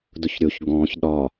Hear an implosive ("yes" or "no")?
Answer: yes